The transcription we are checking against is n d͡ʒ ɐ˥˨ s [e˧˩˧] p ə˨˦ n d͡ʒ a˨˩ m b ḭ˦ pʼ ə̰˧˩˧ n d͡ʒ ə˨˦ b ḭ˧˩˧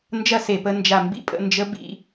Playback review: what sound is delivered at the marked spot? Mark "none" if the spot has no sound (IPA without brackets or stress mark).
e˧˩˧